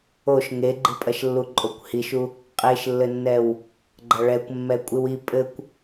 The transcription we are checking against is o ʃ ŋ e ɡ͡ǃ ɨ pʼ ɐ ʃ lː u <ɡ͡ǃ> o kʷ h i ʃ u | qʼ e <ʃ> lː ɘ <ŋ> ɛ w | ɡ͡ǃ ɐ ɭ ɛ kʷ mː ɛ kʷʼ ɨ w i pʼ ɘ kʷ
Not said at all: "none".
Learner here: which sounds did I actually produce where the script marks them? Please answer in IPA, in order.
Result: ǃʼ, ʃ, nː

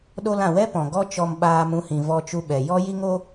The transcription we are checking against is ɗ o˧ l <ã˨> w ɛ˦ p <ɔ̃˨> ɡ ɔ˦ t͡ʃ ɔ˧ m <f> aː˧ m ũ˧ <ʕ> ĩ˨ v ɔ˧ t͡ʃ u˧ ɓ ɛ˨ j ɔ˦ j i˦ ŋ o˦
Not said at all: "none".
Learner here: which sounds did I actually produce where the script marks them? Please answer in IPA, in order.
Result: ã˨, ɔ̃˨, ɓ, h

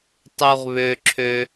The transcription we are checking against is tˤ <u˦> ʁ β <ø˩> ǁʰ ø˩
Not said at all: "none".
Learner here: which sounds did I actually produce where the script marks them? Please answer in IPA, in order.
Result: u˩, ø˩

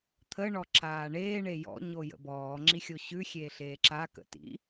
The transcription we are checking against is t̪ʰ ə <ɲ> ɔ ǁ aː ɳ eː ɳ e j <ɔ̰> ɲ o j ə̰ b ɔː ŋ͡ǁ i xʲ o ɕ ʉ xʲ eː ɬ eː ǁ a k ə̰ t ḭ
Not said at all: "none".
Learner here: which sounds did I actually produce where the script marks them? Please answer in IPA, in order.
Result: ɳ, ɔ̰

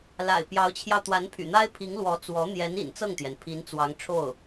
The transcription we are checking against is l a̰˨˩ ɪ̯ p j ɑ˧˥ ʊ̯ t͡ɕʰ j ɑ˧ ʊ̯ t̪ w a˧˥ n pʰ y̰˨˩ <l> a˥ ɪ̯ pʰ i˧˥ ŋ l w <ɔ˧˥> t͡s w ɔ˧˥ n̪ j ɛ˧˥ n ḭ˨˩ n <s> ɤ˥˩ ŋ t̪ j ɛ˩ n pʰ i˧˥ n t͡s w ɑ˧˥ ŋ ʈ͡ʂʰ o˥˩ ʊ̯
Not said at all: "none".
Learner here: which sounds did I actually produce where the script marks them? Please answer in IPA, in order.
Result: n̪, ɔ˧˥, t͡s

